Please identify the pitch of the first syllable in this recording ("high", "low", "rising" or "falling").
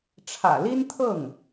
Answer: low